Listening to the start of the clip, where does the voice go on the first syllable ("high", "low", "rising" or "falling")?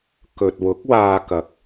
low